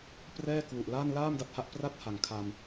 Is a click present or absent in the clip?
absent